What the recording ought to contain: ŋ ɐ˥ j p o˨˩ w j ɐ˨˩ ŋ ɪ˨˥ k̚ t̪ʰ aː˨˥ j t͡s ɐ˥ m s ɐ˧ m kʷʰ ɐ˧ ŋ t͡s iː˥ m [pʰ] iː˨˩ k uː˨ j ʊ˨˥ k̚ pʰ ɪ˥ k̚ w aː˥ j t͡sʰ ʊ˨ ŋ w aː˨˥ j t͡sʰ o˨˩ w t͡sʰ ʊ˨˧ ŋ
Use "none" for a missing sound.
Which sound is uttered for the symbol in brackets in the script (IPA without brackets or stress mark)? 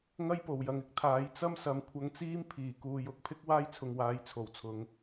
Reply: pʰ